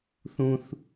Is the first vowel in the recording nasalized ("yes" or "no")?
yes